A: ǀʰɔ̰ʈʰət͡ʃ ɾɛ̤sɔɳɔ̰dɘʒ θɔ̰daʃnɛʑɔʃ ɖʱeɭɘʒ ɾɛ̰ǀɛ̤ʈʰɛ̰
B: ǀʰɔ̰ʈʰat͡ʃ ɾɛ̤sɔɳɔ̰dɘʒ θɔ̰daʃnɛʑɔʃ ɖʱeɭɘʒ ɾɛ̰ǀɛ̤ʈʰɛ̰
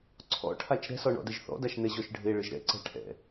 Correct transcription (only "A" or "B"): B